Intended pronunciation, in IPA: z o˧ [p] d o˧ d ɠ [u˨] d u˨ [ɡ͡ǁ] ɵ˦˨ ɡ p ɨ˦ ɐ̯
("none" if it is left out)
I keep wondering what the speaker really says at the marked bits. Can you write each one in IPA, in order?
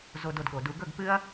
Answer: none, o˨, ɡ

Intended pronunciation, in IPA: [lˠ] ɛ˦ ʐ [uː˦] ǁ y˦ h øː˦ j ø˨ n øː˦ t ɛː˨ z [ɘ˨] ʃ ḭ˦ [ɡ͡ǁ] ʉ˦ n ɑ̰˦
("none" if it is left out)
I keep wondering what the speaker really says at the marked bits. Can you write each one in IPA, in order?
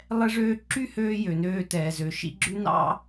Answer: lˠ, øː˦, ø˨, ɡ͡ǁ

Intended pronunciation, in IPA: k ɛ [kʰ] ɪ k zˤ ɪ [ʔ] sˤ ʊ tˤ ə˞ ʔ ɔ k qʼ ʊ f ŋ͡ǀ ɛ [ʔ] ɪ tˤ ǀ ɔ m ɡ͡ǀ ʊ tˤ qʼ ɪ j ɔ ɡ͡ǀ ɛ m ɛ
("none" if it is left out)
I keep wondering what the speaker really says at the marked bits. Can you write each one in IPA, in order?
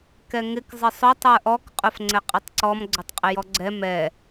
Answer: ŋ, none, qʼ

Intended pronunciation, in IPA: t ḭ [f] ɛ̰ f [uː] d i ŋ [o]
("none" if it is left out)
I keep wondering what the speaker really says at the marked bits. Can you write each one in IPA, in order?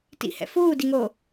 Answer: h, uː, oː

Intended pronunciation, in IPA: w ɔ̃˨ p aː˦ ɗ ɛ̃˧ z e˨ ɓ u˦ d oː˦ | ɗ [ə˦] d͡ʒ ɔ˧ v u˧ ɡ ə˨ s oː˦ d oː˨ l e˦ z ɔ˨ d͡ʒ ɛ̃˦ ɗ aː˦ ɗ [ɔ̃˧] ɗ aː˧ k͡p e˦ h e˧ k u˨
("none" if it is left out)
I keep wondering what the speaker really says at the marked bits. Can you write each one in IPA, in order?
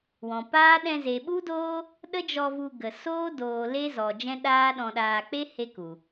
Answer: ə˦, ɔ̃˧

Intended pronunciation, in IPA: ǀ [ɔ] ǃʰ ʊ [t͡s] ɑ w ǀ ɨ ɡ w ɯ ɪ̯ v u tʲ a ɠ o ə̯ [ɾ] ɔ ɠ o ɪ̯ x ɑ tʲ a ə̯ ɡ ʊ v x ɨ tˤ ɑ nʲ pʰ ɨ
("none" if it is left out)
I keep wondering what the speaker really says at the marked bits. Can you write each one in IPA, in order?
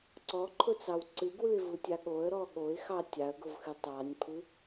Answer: ɔ, t͡s, ɾ

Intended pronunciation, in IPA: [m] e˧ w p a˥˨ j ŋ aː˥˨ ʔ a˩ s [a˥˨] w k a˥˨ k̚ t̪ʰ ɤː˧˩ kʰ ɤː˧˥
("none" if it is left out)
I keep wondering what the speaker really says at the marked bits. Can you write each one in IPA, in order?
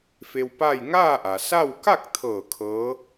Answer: f, a˥˨

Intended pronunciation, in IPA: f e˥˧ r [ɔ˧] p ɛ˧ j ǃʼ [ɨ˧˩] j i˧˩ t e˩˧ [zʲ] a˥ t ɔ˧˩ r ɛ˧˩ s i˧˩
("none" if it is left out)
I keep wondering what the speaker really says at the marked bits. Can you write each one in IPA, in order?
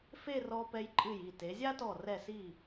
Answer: ɔ˧, ɨ˧˩, zʲ

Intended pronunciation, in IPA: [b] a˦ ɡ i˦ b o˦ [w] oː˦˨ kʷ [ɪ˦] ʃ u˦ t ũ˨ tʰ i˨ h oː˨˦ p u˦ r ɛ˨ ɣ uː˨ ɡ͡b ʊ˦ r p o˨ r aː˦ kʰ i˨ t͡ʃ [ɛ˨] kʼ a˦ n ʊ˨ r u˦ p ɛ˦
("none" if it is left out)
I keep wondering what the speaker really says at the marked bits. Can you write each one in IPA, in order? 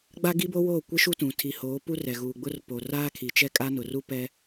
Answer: ɡ͡b, w, ɪ˦, ɛ˦

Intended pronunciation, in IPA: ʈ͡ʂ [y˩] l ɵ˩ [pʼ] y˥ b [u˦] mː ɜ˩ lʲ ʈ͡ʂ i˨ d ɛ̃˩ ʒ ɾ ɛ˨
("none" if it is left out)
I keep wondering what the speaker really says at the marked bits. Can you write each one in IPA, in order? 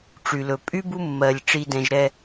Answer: y˩, pʼ, u˦

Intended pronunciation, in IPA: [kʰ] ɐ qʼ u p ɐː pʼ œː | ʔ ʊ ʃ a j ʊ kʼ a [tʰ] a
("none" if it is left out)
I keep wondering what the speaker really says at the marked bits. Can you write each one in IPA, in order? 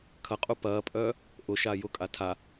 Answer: kʰ, tʰ

